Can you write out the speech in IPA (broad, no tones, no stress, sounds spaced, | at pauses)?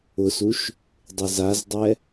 ʊ s u ʃ | dˤ ɪ z a z dˤ ɛ